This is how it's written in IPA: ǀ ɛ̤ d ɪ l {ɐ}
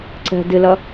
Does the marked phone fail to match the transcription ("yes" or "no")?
no